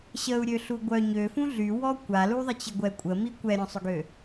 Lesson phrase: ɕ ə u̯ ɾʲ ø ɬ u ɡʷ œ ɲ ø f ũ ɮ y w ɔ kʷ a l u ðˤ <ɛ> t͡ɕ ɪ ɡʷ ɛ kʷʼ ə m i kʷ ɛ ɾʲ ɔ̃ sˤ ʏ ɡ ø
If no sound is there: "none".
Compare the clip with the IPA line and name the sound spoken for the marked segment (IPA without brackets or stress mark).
ə